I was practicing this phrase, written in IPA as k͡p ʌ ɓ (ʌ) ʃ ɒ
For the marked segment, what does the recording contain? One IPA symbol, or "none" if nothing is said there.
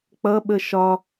ə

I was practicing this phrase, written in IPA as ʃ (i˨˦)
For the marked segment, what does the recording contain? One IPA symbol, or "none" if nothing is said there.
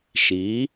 i˨˦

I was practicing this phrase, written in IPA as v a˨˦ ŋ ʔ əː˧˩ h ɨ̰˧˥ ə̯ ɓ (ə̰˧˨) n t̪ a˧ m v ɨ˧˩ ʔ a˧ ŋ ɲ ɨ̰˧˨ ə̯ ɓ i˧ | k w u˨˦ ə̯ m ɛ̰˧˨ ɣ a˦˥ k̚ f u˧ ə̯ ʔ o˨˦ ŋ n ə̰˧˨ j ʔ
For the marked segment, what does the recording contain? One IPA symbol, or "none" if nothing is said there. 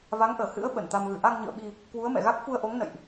ə˧˩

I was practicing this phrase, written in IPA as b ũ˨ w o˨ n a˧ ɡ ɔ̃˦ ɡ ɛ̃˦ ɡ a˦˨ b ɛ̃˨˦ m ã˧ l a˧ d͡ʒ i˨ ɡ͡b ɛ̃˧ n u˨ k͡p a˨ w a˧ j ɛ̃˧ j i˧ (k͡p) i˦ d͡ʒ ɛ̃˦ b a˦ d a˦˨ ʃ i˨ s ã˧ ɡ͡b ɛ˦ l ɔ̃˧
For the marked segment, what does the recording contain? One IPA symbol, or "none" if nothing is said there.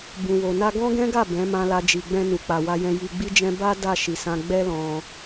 ɡ͡b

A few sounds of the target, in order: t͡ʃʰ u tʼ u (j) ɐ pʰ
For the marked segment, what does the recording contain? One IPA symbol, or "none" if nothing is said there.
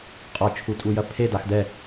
j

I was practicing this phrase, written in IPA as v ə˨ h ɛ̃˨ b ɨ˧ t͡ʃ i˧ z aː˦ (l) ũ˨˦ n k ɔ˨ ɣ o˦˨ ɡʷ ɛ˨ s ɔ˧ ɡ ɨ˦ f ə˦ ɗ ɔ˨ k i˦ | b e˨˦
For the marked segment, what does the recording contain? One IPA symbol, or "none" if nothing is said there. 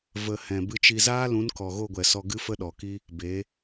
l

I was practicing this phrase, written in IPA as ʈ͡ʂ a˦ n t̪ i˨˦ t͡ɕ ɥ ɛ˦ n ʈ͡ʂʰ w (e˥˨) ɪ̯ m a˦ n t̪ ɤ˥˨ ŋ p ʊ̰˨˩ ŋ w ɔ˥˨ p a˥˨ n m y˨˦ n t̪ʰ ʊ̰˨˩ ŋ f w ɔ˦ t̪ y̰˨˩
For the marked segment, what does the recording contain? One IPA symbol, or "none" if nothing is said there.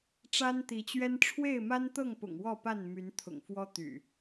e˥˨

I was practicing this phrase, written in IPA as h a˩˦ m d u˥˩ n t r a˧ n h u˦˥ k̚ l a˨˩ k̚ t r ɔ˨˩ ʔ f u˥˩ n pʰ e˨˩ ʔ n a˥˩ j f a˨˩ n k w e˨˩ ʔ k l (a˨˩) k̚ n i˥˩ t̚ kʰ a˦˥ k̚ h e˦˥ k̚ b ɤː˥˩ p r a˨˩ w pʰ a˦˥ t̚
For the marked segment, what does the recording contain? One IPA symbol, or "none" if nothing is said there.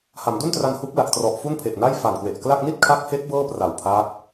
a˥˩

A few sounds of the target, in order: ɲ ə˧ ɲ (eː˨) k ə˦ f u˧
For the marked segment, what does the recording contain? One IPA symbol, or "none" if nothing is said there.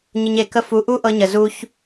e˨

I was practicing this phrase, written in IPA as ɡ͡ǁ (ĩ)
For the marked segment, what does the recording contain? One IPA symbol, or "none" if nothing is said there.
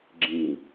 ĩ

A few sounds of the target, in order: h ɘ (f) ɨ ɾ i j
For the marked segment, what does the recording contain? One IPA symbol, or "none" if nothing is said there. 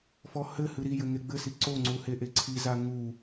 h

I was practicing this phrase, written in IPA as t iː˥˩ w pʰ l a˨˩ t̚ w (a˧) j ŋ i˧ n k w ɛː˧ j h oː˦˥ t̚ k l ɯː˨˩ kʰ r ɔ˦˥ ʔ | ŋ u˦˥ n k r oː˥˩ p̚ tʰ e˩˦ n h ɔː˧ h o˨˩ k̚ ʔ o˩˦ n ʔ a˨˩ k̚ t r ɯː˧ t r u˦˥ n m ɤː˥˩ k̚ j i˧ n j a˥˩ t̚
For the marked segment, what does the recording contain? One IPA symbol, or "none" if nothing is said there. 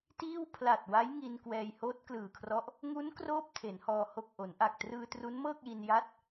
a˦˥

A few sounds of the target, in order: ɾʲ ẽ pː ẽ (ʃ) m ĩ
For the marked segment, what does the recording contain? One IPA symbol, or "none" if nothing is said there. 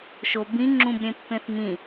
θ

